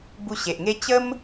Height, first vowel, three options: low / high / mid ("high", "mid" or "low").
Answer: high